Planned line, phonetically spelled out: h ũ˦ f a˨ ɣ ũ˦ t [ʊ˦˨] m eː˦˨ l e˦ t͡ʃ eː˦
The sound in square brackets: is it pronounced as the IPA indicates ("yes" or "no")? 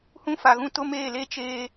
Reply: no